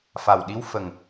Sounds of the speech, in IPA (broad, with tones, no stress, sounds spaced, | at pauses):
f a˨˩ w ɗ i˧ w f ə˨˩ ŋ